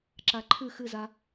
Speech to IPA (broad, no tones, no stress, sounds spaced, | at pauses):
ǁ a ǃʰ ɨ x ɨ z a